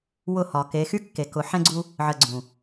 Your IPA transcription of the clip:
w ʊ˦˨ h ɒ˨ k e˨˦ x y˦ kː e˨ k ʊ˨ ħ ɛ̃˦ ɡ͡ǀ u˦ | ʕ ə˨ ɡ͡ǀ ũ˨

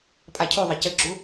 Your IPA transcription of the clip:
pʼ a cʰ u ðˤ ɘ c ɘ ɡ͡ǁ u

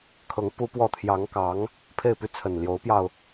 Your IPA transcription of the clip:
kʰ ɤ˧˥ ŋ p u˥ p w ɔ˥˩ t̪ʰ j ɑ˧˥ ŋ k ɑ˧˥ ŋ | pʰ e˥˧ ɪ̯ p y˥˩ t͡sʰ ə˨˩ n l j o˧˥ ʊ̯ p j ɑ˧ ʊ̯

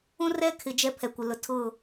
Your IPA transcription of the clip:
ũ˦ r ɛ˦ kʰ ɪ˨ d͡ʒ ɛ˦ pʰ ɛ˨ kʷ ɪ˨ l ʊ˨ tʰ ʊ˦˨

